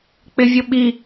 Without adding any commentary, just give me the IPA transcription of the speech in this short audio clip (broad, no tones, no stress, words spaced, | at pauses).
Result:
k͡pɪvʲʊɓi